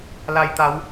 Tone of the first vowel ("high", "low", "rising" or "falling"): low